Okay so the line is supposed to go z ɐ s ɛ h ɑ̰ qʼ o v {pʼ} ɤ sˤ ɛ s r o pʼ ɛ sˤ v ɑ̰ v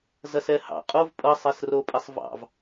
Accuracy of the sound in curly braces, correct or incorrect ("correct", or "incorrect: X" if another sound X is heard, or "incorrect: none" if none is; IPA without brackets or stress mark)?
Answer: correct